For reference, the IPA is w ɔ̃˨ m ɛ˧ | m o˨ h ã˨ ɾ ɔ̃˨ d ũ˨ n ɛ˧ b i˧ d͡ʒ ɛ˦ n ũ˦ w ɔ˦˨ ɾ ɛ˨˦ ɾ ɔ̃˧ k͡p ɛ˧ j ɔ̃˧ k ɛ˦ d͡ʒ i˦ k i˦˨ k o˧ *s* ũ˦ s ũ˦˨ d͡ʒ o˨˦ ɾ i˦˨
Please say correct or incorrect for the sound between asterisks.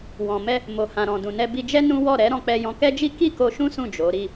incorrect: ʃ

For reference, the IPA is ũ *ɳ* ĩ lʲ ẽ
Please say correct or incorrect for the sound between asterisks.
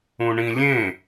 correct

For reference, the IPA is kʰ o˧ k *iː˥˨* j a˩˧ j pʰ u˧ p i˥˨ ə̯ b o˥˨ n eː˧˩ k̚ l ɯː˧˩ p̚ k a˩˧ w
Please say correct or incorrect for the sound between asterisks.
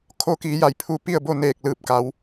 incorrect: iː˩˧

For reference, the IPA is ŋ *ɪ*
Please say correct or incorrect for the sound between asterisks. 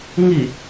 incorrect: i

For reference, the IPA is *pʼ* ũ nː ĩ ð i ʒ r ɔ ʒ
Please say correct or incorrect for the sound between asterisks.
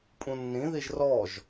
correct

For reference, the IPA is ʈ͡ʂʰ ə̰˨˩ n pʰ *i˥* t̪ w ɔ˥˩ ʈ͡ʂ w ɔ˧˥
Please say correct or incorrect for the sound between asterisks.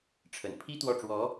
correct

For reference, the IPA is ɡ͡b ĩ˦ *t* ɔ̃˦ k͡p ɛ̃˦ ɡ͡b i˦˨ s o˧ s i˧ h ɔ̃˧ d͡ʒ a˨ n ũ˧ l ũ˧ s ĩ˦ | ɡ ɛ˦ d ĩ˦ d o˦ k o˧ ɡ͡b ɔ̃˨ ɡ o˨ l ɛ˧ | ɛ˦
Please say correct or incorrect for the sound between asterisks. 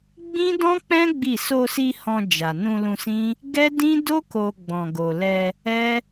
incorrect: d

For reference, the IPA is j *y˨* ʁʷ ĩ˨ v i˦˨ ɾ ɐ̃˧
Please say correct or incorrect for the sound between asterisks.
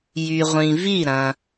correct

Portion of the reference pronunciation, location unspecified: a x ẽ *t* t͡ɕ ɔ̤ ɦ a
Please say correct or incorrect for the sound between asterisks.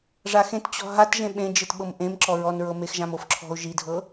correct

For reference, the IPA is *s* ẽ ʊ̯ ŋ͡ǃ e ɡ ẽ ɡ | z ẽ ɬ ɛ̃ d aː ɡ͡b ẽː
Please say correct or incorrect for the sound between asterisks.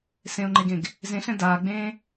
correct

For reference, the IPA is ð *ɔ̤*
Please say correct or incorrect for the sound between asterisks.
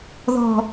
correct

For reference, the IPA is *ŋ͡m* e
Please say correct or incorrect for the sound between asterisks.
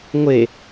incorrect: ŋʷ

